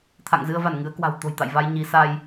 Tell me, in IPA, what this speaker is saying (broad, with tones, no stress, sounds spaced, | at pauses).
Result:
t̪ʰ a̰˧˨ ŋ z ɨ˧ ə̯ v a˧˩ n ŋ ɨ˨˦ ə̯ k w a̤˨˩ w t̪ o̤˨˩ j t̪ a̰˧˨ j v a˧ j ɲ i˨˦ s a˧ j